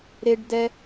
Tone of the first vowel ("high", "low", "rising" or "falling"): high